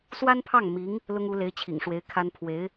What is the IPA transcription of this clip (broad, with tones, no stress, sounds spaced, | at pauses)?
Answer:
s w a˥ n pʰ ɑ˥˩ ŋ m i˧˥ ŋ | l ʊ˥ ŋ u˧˥ l e˧˥ ɪ̯ t͡ɕʰ ḭ˨˩ ŋ ʂ w e˧˥ ɪ̯ kʰ a˥ n pʰ w e˧˥ ɪ̯